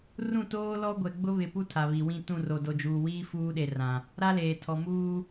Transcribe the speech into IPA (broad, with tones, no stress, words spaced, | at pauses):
rũ˦˨toː˦lɔ˦ ɡʷɛ˨ɡ͡bʊ˦βɪ˨pu˦ tʰa˨βi˨wĩ˦˨ tũ˦˨ro˨do˨ d͡ʒuː˨wiː˦ fuː˦ɗe˨ rã˨ | ɾa˦leː˨tʰɔ˨muː˦